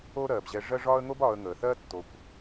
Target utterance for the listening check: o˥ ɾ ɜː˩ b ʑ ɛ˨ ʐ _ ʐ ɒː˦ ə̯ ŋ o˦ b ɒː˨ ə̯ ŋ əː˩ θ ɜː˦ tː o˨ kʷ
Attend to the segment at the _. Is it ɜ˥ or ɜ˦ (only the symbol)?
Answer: ɜ˦